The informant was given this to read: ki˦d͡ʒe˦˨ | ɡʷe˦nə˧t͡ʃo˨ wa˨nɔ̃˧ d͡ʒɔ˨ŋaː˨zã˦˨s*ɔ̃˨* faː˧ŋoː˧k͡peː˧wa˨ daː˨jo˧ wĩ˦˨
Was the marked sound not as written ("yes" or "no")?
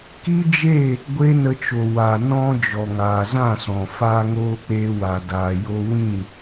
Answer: no